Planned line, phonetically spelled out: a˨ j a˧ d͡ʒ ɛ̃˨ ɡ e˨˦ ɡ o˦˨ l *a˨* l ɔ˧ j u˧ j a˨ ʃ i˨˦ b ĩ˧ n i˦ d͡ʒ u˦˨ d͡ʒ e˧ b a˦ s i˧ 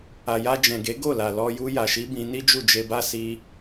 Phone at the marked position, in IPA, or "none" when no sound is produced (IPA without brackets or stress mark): a˨